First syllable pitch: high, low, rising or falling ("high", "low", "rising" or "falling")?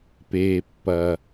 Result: low